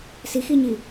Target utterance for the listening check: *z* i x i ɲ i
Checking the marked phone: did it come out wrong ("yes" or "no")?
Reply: yes